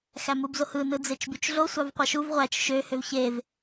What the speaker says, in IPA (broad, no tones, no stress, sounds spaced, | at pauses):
x æ m u b z o h ɯ n ɯ d͡z e t͡ʃ b y t͡ʃ ɮ o sʷ ɑ v qʷ ɑ ʃ u v ʁʷ æ t͡ʃ ʃ ø h ø v ç e v